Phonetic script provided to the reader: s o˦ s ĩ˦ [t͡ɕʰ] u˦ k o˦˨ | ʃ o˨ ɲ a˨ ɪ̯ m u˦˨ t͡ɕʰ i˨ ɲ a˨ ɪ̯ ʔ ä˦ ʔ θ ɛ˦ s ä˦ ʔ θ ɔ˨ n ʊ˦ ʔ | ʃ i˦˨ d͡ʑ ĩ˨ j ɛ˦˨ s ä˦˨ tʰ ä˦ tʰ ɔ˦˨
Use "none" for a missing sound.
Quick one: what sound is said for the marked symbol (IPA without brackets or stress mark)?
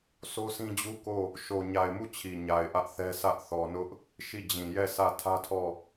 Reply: d͡ʑ